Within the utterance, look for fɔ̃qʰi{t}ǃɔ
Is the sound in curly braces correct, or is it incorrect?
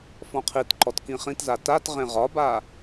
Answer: correct